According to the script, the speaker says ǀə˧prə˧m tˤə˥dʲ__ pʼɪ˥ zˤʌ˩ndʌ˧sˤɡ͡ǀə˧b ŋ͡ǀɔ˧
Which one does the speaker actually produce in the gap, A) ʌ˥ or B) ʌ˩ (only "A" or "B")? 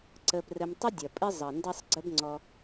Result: B